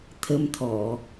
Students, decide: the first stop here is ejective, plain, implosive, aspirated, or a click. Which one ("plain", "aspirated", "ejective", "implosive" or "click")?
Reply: aspirated